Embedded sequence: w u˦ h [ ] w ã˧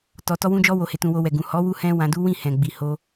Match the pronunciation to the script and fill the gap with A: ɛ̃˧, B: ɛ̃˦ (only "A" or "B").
B